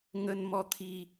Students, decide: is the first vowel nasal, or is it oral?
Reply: oral